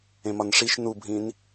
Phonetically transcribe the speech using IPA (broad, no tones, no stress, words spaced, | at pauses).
ẽmɒnʂiʃ nubʱĩn